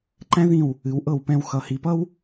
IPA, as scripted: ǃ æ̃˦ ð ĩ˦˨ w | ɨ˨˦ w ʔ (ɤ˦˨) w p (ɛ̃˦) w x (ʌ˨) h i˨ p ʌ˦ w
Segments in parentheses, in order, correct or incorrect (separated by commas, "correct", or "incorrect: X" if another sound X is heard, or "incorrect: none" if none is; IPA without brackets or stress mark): correct, correct, correct